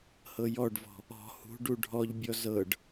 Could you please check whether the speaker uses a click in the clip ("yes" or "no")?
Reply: no